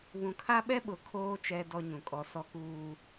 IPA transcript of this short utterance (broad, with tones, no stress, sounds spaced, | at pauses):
β ũ˨ kʰ a˦ ɓ ɛ˦ ɓ ʊ˨ kʰ oː˦ t͡ʃ ɛ˦ d ɔ˦ ɲ ũ˨ kʼ ɔ˦ s ɔ˦ k uː˦